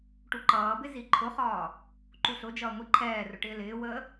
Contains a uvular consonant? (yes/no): yes